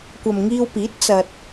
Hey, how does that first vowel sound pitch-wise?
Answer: low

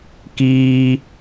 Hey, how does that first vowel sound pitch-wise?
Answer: high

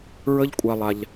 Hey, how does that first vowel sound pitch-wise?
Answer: high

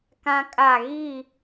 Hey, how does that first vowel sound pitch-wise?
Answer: high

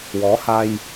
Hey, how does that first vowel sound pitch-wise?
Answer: rising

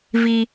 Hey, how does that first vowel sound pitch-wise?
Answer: high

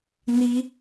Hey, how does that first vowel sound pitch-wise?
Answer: high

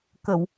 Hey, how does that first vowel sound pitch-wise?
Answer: low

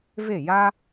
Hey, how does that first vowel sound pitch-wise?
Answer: falling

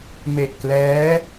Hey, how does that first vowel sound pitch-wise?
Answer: low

